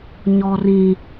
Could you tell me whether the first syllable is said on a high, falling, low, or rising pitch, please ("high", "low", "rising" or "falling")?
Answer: high